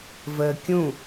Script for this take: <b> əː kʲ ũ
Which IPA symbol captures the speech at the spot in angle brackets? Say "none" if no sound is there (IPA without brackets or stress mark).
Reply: v